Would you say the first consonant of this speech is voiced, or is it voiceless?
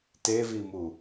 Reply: voiceless